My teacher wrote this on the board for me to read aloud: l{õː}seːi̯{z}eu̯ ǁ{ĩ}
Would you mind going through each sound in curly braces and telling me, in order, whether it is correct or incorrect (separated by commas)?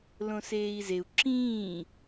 incorrect, correct, incorrect